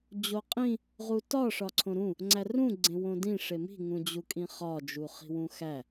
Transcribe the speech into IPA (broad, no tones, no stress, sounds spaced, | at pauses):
d͡ʑ o qʼ ĩ | ʁ u t ɒ ʂ ɒ ǀʰ õ ɾ ũ | ŋ͡ǀ æ r ũ ɡ͡ǀ ẽ w õ d ĩ ʂ e m i̤ ŋ ũ d͡ʑ u kʼ ĩ χ ɒ d͡ʒ u χ i̤ w ũ x æ